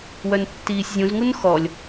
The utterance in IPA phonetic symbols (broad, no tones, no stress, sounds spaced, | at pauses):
w œ n tː iː sʲ zʲ ũ z ŋ u n x ɔ lʲ